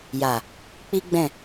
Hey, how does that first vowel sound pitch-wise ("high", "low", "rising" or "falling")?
low